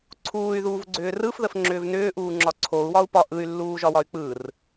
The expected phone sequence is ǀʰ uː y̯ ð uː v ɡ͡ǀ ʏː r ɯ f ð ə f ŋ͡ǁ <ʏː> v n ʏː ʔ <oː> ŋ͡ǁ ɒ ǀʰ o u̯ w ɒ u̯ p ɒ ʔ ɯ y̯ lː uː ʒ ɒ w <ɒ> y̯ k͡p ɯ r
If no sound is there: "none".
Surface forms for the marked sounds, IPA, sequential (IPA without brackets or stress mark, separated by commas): ʏː, uː, ɒ